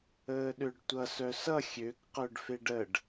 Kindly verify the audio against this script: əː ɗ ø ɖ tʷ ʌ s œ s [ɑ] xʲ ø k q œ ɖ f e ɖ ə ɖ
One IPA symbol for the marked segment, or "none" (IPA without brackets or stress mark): ʌ